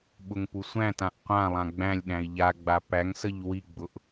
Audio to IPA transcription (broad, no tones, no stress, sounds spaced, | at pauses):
ɓ ʊ ŋ p u sʷ æ̃ t ã ʔ qʷ ã lˠ ã ɡ͡b æ̃ lʲ ɗ æ̃ i̯ ʎ a ɡ͡b a p æ ŋ s ə ʎ w i ɡ͡b ʊ ʔ